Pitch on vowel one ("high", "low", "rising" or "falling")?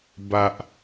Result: low